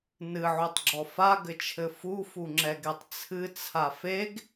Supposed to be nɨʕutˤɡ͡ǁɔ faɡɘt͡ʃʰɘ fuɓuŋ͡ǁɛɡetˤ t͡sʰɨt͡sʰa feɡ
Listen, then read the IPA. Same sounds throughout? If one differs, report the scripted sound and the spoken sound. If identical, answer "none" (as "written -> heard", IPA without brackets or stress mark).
ɓ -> f